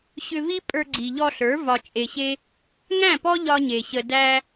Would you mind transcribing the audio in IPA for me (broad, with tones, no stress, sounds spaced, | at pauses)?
ɕ ʏ˧ v i˦ pʼ ə˞˧ ɡ͡ǀ i˨ ʎ ɔ˧ ɬ ə˞˨˦ v ɒ˧ t͡ʃʼ e˧ ɕ e˦ | ŋ æ̃˦˨ p ɔ˦ ʎ ɒ˦ ɲ e˨ ɕ ə˧ d æ˦